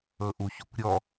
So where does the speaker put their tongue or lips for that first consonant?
throat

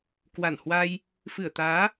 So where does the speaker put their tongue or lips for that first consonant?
velum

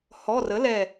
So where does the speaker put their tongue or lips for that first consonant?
throat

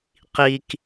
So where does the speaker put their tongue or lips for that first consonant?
uvula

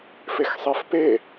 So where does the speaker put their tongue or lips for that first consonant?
lips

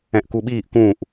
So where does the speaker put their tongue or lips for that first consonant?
throat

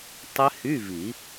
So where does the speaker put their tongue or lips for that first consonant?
tongue tip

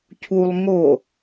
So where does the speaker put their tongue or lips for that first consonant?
palate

